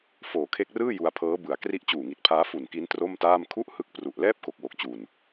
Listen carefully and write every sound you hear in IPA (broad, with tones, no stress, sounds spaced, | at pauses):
f oː˨˩ kʰ e˦˥ k̚ r ɯː˥˩ j u˧ a̯ pʰ ɤː˦˥ b ɯ˨˩ a̯ k r i˦˥ ʔ t͡ɕ uː˨˩ ŋ i˨˩ t̚ pʰ aː˦˥ f u˨˩ n k i˦˥ n t r o˥˩ m t aː˥˩ m kʰ u˥˩ ʔ h ɯ˦˥ k̚ p r u˨˩ ʔ l ɛː˥˩ p̚ k o˨˩ k̚ w o˨˩ k̚ t͡ɕ u˨˩ n